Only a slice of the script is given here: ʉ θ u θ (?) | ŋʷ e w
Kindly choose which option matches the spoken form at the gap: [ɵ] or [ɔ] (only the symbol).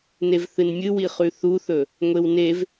ɵ